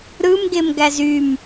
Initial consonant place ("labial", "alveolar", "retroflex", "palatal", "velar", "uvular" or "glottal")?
alveolar